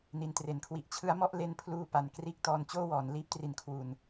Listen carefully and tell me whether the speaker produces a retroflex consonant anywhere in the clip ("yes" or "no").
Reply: no